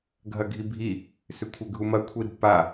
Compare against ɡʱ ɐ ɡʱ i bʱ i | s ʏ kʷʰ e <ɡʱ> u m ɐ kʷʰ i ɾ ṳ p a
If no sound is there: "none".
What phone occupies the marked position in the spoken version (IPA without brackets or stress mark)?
ɡʱ